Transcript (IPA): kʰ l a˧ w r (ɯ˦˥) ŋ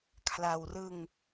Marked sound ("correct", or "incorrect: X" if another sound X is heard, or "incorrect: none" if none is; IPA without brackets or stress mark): incorrect: ɯ˧